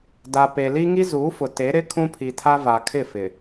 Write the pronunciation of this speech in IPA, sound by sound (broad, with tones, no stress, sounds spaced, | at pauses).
d a˨ p e˨ l i˦ ŋ i˦ z uː˨˦ f ʊ˨ t e˨˦ ɾ ɪ˦ kʰ ũ˦ pʰ i˨ tʰ a˦ v a˨ kʰ ɪ˦˨ f ɪ˨